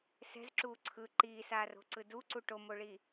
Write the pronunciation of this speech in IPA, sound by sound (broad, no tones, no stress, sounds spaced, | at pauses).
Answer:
s ɛ̤ z ǁ uː ǀʰ ɯ ǃ iː s aː r o̤ ǀ ɯ d u ǀ u ʈ o m o ɭ i